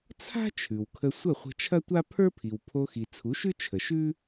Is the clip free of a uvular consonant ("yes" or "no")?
no